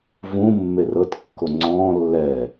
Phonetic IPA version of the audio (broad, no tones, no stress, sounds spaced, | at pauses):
v ũ mː e r ɤ t kː o ŋ͡ǀ ɔ̃ː lː ɛ